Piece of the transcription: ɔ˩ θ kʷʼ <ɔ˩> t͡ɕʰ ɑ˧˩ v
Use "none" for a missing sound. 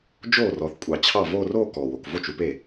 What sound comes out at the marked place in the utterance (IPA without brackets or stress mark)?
ɑ˩